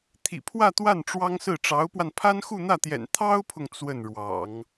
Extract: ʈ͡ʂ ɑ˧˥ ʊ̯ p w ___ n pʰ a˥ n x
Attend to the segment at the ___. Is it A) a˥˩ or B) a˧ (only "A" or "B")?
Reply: B